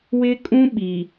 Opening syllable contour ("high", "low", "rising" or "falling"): high